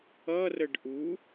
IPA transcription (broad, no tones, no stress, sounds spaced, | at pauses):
ʌ r ə ɖ ʔ u